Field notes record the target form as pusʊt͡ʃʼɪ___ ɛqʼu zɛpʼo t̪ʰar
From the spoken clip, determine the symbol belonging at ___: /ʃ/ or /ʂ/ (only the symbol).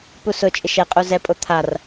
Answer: ʃ